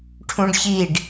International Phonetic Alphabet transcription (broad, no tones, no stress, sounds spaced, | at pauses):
ʈʰ ũ ɖ ç i ɖ